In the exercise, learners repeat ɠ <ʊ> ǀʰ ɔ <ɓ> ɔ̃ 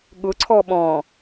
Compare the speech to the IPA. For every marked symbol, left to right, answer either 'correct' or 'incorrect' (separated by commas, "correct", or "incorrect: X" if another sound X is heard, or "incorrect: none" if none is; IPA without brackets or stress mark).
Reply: correct, correct